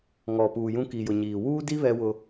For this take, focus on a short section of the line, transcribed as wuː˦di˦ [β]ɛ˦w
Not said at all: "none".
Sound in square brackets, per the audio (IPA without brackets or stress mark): β